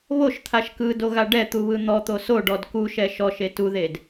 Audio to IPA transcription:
β o ʃ t̪ʰ a ʃ k ɯ d o ɣ a ɖ ɛ t̪ u β ɯ n̪ ɔ t̪ o s o ɖ ɔ d k u ʃ ɛ ʃ ɔ ʃ e t u ð e d

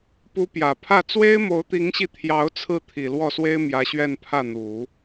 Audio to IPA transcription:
p u˧˥ p j ä˨˩ pʰ ä˥˩ t͡s w e˥ ɪ̯ m o˧˥ ʊ̯ t̪ i˧˥ ŋ ɕ i˧ t̪ʰ j ɑ˧˥ ʊ̯ t͡sʰ ɹ̩˥˩ t̪ʰ i˨˩ l w ɔ˥˩ s w e˥ ɪ̯ m j ä˧˥ ɕ ɥ ɛ˥˧ n pʰ ä˥˩ n̪ u˨˩˦

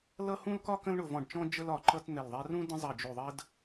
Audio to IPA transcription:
l ʌ˥ h ũ˥ l k ɒ˥ k ə̃˥ l ɳ ʊ˦˨ v ɔ̃˦˨ ɖ t͡ʃ ɔ̃˥ d͡ʒ ə˥ l ɒ˦˨ ǃ ʌ˥ t n̪ ɛ˦˨ l ðˤ ɛ˥ r ũ˥ d ə̃˥ zˤ ʌ˦˨ d͡ʒ u˦˨ ðˤ ə˥ d

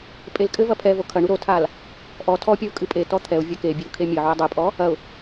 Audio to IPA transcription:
pʼ e l kʼ ɘ v ɐ pʰ ɛ v o kʰ ɐ ɳ u ɾ o tʰ a l | ʔ ɔ tʰ ɔ pʲ ɐ ʊ̯ kʼ ɨ pʼ e t ɔ t̪ʰ ɛ ʊ̯ vʲ ɐ k e bʲ e ʊ̯ kʰ e mʲ ɘ ʕ u ɪ̯ dˤ ɨ pʼ ɔ | ɐ ʊ̯

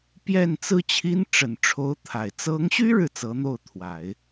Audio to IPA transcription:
p j ɛ˥˩ n t͡s ɹ̩˥ t͡ɕʰ i˥ n ʈ͡ʂ ə˨˩ n ʈ͡ʂʰ o˧˥ ʊ̯ t̪ʰ a˨˩ ɪ̯ t͡s ɤ˧˥ ŋ ɕ y˥ ɻ ɻ̩˨ t͡s ɤ˧˥ n̪ o˥˩ ʊ̯ t̪ʰ w a˨˩˦ ɪ̯

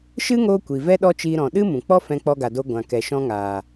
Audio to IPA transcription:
ʃ ɨ˦ ŋ oː˧ kʷ i˨ v ɛ˦ ɗ ɔ˦ t͡ʃ iː˧ ɾ ɔ̃˨ ɗ ɨ˦ m ũ˨ k͡p ɔ˦ f ɛ̃˧ k͡p ɔ˧ ɡ a˨ d o˧ ɡʷ ã˨ k ɛ˨ ʃ ɔ̃˧ ŋ aː˨

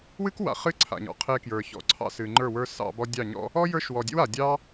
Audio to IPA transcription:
w ɨ˦ k w a̰˨ χ ɨ˦ ǀʰ a̰˨ ɲ ɔ̰˨ qʰ e˧ k j ə˞˨ ç ɔ̰˨ ǀʰ ɑ̰˧ s ɨ˨ ŋ͡ǃ ə˞˦˨ w ə˞˦ s ɑ̰˧ b ɔ˦ dʲ ɑ˦˨ ɲ ɔ̰˦ | ɔ˦ j ə˞˧ ʃ w ɔ˨ dʲ ḛ˦ w a˨ dʲ ɑ˦

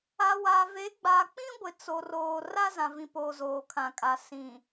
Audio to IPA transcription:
a˨ w a˨ v e˨˦ ɡ͡b a˨ k͡p ĩ˦ ɡʷ ɪ˨ t͡s o˨ r oː˨ r a˦ z ã˨ v ĩ˨ p oː˨ z oː˨ kʰ ã˨ kʼ a˨ s ĩ˨

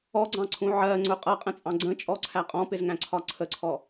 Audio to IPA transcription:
ɔ ɡ͡ǀ ɑ̃ ǀʰ ũ ʕ ɜ ŋ͡ǀ ʊ qʼ ʌ qʼ ə̃ t͡sʼ ɑ̃ ɡ͡ǀ ə̃ t͡ʃʼ ɔ ǀʰ æ qʼ ɔ̃ p ɪ z ŋ æ̃ ǀʰ ɒ ǀʰ ə ǀʰ ɔ

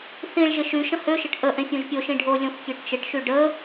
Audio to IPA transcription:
θ ĩ ɭ ʒ ɪ ʃ y ʃ ə̃ h ø ʃ ɪ ʈ ʔ ə ʔ ẽ fʲ õ ʒ pʲ o ʃ ĩ ɖʱ o lʲ õ f kʲ ø ʈ t͡ʃ ɪ ʈ ʃ y ɖ ə

